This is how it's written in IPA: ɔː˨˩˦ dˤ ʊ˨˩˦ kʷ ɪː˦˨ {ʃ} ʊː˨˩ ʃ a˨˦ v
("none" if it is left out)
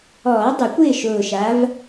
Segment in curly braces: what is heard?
ʃ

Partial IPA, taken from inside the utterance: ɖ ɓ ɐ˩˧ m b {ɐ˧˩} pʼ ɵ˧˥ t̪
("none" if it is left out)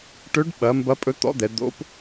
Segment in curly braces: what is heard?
ɐ˧˥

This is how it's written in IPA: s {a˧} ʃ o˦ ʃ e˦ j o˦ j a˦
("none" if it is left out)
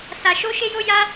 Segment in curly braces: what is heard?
a˦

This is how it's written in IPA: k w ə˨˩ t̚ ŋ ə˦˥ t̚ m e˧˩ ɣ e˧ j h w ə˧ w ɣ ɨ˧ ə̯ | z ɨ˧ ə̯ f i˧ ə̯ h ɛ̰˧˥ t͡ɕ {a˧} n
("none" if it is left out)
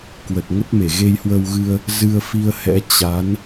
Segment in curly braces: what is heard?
a˨˦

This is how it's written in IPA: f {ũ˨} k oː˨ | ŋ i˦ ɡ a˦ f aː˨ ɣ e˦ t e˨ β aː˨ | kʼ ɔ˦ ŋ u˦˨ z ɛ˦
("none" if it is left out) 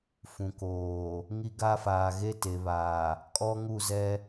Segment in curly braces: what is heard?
ũ˨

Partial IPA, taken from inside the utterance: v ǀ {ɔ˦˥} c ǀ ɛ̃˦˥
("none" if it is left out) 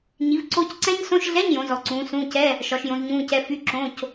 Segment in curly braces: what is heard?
o˦˥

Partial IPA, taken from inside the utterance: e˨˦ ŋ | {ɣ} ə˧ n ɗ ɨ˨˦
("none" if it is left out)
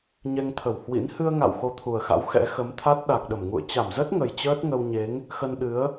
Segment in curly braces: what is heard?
x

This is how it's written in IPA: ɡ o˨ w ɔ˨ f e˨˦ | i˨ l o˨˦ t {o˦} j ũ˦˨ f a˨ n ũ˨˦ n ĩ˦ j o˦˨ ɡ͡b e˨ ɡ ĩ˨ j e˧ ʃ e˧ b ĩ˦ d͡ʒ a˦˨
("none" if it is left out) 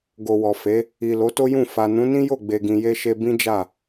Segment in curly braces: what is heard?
o˦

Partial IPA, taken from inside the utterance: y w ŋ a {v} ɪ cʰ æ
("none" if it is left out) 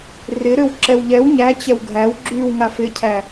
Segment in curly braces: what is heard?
f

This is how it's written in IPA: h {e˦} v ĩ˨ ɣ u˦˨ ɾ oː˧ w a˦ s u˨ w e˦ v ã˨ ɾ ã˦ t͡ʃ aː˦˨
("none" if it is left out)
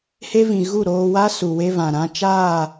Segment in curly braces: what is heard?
e˦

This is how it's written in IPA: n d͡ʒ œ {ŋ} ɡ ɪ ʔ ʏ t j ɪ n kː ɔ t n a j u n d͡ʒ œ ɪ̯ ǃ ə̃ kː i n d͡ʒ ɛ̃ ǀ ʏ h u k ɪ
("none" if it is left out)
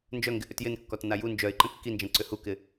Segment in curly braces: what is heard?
ŋ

